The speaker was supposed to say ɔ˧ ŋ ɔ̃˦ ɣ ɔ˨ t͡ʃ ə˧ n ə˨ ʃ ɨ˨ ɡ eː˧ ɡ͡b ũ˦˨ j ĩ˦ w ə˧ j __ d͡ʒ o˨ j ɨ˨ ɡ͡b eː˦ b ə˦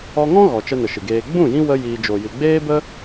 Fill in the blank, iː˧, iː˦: iː˧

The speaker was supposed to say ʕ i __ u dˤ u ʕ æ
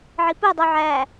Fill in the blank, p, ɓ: p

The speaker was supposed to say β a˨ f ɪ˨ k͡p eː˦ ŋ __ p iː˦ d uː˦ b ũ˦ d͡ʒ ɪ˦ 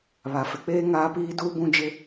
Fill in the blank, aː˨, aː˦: aː˦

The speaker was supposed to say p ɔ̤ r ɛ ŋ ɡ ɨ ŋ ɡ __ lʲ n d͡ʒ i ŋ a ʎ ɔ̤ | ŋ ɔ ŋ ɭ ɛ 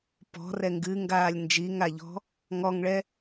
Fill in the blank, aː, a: aː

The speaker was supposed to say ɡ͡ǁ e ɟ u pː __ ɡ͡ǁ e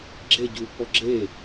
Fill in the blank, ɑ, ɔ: ɔ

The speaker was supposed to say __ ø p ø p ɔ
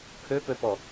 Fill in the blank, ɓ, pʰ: pʰ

